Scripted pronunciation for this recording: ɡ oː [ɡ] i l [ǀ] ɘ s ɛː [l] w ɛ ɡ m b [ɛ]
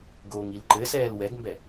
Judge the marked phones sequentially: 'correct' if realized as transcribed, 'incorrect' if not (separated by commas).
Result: incorrect, incorrect, correct, correct